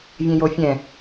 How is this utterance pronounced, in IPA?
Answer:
vʲ ẽ j o fʲ ɛ̃

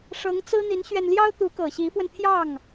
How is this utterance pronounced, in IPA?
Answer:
ʂ ɤ˧˥ ŋ t͡s ɹ̩˥ n̪ i˧˥ n ɕ ɥ ɛ˧ n l j ɑ˥ ʊ̯ t̪ u˧˥ k ɤ˨˩ ɕ i˧˥ f w ə˧ n t̪ʰ j ɑ˥˩ ŋ

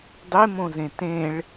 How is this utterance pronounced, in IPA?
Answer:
dˤ e m õ z ẽ t ẽ ɭ

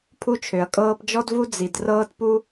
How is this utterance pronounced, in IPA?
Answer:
pʰ u˦ t͡ʃʰ ø˨ ɐ̯ kʼ ɤː˧ p d͡ʒ ɔ˦ d v u˦ d͡z i˨ d r ɤː˦ t p u˦

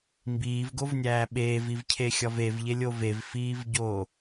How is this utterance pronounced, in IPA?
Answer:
m b iː v ɡ o v nʲ æː ɓ eː v i v cʰ e xʲ ɒ v e v ʎ e lʲ o v e v f iː v ɟ oː

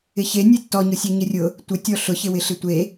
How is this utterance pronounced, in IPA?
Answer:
ɪ ç e nʲ e tː ɔ ɲ ʊ sʲ ɛ ɲ ɪ rʲ ʊ | tʷ ɪ tʲ ɔ ɬ ʊ ç ɪ w ɪ ɬ ɪ tʷ e

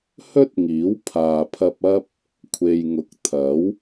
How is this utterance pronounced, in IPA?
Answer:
h ɵ˥ t̚ ŋ iː˨˥ w pʰ aː˨ pʰ ɐ˧ p̚ ɐ˥ p̚ | kʷʰ e˨ j ŋ ʊ˨˥ k̚ t̪ʰ ɐ˨˥ w

